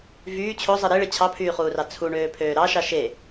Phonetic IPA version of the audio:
v yː t͡ɕʰ o zˤ ɯ ɾ i ɭ e t͡ɕʰ ɑ pʰ yː χ uː r ɑ t͡sʰ u ɳ øː pʰ øː ɾ ɑ ʃ ɑ ʃ e

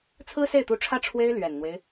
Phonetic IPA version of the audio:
t͡sʰ ɹ̩˥ s e˥˩ ɪ̯ t̪ u˧˥ ʈ͡ʂʰ ä˥˩ ʈ͡ʂʰ w e˥ ɪ̯ l ɥ ɛ˨˩ n n̪ w e˦ ɪ̯

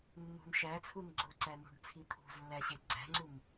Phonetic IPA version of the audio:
nː ṳ n ʃ æ t͡sʰ u n ɡ͡ǀ o ǀ æ n ṳ ɖ t͡sʰ i t̪ʰ ṳ z lː æ ɕ e ɡ͡ǀ æ̤ ŋ͡ǀ u m

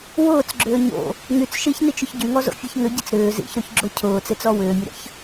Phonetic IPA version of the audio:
w ʊː t͡s ɡ͡ǁ ʏː ɲ o̰ | ŋ y t͡s ʃ i ç n i t͡ʃ ʏ ç ɟ y ŋ ɔ z o̰ fʲ e ç ŋ ʏ ɟ i t͡s ɾ ʏː z ḭ ç ɾ o ç ɡ͡ǁ o cʰ ʊː t͡s e t͡s ɔ w ʏː mʲ ʊ ɾ ə̰ ç

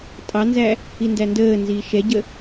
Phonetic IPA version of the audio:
tʼ ɑ n z æ | i n d æ n d əː n z iː ʃ ɛ ɟ ə

